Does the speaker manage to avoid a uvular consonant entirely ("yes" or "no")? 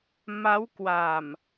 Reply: yes